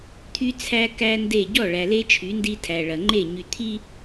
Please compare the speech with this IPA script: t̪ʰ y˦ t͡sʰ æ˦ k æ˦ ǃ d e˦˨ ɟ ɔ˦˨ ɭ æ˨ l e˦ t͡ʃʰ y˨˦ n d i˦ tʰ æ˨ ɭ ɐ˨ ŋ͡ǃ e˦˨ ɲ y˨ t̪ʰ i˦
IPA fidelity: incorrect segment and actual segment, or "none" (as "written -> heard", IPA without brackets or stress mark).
ǃ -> n